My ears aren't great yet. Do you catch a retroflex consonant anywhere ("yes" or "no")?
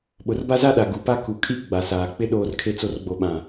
no